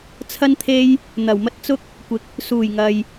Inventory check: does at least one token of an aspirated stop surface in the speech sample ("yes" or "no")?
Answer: yes